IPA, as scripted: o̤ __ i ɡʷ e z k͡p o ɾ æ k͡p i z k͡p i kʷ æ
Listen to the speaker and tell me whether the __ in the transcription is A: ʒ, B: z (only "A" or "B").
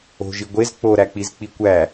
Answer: A